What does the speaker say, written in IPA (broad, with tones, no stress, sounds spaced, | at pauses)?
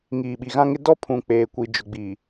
ŋ iː˨ ɓ i˨ ɣ ã˦ ŋ ɪ˦ d ɔ˦ pʰ ũ˨ k͡p eː˨ kʷ i˨ d͡ʒ ʊ˨ ɡ͡b i˨